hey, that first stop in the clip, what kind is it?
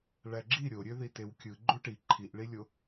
click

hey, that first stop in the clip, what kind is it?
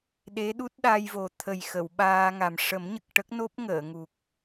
implosive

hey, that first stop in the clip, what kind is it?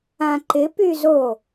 click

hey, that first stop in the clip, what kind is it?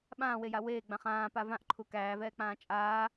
implosive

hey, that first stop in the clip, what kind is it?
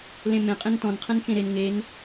ejective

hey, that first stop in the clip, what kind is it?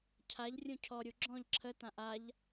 aspirated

